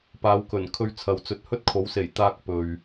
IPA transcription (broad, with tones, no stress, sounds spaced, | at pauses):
p aː˨˧ w k ɵ˨˩ n kʰ ɵ˧ ɥ t͡sʰ ɐ˨ w t͡s ɵ˨˥ t̚ h ɵ˥ t̚ kʰ o˨˥ w s e˨˩ j t̪ aː˧ k̚ p ɵ˨ ɥ